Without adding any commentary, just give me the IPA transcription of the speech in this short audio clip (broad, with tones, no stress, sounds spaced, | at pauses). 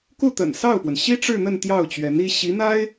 k u˥˩ t̪ ə̰˨˩ n s ɑ˥˩ ʊ̯ p w ə˩ n ɕ i˥ ʈ͡ʂ ɻ̩˥˧ n̪ ə˥˧ n t̪ j ɑ˥˩ ʊ̯ t͡ɕ ɥ ɛ˧˥ n i˥ ɕ i˧˥ n̪ a˥ ɪ̯